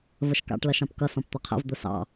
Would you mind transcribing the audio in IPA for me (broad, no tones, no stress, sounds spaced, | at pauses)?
v ə ʃ k ɑ̰ ʈ l ʌ ʃ ɑ̃ p k ʌ s ɔ̃ p t̪ ʌ qʰ ə̰ v d̪ ʊ s ɑ̰